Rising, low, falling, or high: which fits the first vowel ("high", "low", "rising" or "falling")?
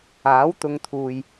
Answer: rising